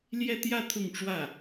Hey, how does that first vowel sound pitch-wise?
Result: falling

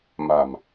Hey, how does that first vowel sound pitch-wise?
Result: low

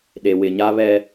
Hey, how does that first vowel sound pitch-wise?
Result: low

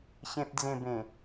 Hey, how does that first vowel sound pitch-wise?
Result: low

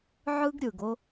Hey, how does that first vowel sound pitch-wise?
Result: high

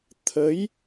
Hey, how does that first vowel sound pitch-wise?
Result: rising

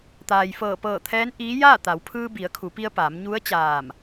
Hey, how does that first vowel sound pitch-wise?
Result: low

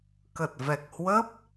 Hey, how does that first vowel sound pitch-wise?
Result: low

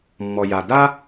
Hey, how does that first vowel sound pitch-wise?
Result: low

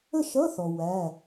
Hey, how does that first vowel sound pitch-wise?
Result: falling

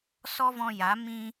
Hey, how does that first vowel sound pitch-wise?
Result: high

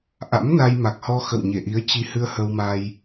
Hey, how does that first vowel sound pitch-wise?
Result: rising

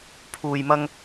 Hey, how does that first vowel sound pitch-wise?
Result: low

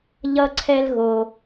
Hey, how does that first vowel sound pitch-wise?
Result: high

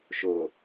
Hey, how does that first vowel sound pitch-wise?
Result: low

